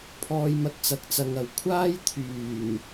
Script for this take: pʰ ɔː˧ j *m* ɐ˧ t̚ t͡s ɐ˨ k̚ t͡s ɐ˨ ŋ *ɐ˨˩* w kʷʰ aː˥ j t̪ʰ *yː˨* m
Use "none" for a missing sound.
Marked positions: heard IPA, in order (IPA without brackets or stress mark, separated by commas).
m, ɐ˨, yː˨˩